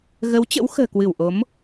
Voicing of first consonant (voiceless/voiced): voiced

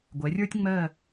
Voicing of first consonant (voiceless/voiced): voiced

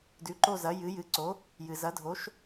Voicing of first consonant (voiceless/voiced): voiced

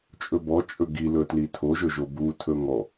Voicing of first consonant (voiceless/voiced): voiceless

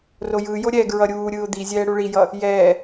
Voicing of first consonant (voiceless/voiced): voiced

